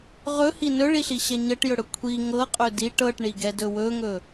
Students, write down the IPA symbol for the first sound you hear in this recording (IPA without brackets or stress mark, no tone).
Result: ʁ